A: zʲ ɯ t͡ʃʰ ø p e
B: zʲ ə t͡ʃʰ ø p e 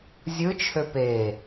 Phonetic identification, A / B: A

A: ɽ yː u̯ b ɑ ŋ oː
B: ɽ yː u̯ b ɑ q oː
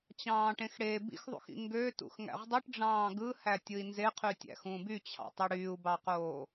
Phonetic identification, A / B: B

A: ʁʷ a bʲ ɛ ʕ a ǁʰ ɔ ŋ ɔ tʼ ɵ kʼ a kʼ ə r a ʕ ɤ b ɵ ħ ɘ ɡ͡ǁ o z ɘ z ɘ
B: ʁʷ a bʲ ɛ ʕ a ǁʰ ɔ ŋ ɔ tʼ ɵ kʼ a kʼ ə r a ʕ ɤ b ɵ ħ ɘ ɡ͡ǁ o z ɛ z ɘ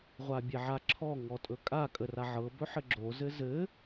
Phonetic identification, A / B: A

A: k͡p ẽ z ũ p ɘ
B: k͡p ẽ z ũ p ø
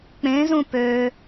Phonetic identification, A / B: B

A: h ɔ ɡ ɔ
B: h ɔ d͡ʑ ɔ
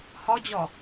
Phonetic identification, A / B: B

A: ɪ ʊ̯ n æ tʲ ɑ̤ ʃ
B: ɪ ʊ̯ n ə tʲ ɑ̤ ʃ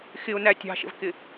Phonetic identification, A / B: A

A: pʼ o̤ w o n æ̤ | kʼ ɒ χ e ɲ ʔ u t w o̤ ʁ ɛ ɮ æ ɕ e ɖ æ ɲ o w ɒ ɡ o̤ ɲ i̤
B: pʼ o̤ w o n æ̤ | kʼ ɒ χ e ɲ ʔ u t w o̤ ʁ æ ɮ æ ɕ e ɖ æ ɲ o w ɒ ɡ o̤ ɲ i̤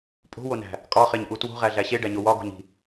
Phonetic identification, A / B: B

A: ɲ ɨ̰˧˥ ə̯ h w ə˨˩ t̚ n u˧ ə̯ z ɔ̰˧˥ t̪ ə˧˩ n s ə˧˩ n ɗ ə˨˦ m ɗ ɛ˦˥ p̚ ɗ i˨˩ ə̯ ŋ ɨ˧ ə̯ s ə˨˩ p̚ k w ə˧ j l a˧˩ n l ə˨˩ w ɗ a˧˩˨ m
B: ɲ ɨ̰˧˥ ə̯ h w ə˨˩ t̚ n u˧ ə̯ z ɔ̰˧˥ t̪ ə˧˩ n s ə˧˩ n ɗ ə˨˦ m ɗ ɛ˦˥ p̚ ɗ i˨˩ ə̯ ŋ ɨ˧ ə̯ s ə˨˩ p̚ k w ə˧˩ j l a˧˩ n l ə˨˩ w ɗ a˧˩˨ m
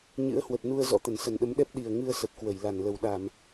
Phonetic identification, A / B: B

